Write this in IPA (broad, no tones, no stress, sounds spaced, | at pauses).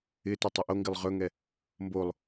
ɪ t ɛ tˤ ɵ ʔ o ŋ ɡ ɪ lˠ ʁ ɵ ŋ ɛ | m b o lˠ